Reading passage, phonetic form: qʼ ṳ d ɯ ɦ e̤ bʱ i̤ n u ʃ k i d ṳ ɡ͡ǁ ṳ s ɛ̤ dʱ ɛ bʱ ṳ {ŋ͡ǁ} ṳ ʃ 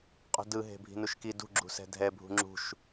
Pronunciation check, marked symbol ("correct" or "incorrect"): correct